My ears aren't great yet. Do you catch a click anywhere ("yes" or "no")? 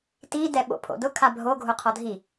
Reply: no